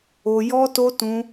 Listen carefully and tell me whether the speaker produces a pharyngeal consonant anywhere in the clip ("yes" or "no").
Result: no